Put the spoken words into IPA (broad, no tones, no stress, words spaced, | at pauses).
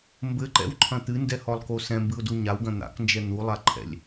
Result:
mbɘǃɛ̰wǃʰɐ̃ t̪ɨndɛhɔlˠko sɛ̃mbɨʊ̯du ɲawɡɐ̃ n̪a̰knd͡ʒɛ n̪ulˠaǃʰɛ̰lʲ